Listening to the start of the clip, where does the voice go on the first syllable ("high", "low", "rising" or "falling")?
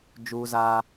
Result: high